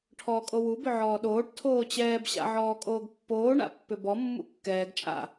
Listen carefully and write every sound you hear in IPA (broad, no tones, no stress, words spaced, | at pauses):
ʈʰɔːkʼowu bʏʕɔːɗoːʈ tʰoːt͡ɕɛːb ɕa̰ʕɔːkʼoːɡpːoː ɳa̰pːʏbɔ mːṵkːɛːɡ t͡ʃʼa̰